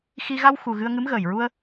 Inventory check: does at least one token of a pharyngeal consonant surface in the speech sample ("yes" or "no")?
no